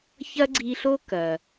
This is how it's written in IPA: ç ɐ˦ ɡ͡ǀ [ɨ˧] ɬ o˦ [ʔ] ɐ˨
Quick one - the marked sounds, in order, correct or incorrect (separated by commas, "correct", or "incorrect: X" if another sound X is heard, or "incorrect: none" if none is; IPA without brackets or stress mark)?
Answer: incorrect: i˧, incorrect: k